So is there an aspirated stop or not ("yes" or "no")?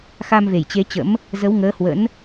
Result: no